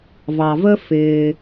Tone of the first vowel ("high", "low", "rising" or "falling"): low